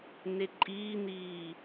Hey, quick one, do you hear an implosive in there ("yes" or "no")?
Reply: no